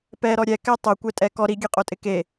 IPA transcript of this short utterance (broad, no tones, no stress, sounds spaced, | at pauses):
p ɛ ɾ ɔ ɾʲ ɛ k ɛ tˤ o kʷ ɛ tʼ ɛ k ɔ ɾ i ɡʲ ɛ qʼ o tʼ ɪ k e